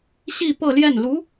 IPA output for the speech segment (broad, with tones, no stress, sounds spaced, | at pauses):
ɕ i˥˧ p ɤ˥˧ l j ɛ˥˩ n l u˧˥